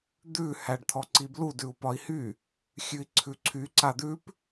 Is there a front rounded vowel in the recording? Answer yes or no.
yes